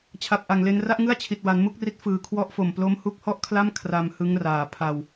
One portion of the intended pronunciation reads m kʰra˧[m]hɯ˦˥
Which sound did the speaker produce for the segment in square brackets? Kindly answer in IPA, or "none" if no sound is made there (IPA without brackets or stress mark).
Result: m